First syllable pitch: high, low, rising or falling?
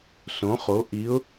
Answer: rising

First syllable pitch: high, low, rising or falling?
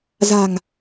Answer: low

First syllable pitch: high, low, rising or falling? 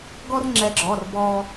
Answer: high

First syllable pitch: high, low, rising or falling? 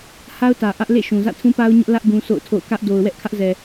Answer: high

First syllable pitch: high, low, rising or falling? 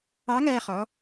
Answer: rising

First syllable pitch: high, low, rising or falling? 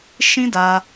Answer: high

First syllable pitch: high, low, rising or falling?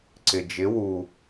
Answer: low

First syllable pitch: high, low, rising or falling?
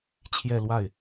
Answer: falling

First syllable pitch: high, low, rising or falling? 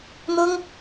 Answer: high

